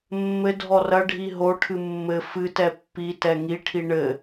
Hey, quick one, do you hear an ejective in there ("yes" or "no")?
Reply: no